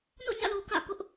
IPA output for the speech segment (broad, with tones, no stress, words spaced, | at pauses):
no̰˦˨ɲä̰˦˨lo˨ kä̰˦˨ kʊ˦ʔ